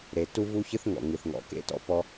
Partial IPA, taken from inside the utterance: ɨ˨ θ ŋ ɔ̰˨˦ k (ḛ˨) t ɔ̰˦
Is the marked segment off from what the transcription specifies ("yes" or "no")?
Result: yes